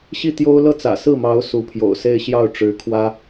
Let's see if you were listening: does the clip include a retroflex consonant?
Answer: yes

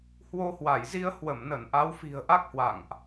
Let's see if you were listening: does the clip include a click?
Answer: no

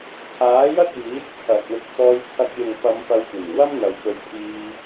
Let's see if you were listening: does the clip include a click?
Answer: no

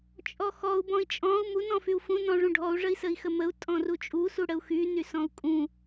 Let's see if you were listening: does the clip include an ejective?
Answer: yes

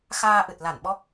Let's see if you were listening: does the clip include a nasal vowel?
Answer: no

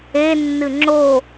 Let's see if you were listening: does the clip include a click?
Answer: yes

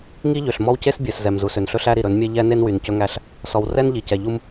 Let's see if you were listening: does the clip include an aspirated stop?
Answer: no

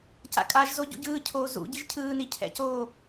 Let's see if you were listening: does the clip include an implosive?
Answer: no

